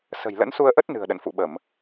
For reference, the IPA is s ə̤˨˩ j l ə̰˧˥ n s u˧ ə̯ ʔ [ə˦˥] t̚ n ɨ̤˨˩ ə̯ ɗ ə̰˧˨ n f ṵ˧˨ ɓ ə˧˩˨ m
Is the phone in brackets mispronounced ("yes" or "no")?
no